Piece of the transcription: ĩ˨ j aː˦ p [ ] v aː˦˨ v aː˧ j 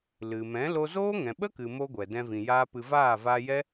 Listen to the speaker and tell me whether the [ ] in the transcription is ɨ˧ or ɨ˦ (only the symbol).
ɨ˧